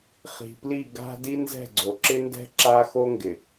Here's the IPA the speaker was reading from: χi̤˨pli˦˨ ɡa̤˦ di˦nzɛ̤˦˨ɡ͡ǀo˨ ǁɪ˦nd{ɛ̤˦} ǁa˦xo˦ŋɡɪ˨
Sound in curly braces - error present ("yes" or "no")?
no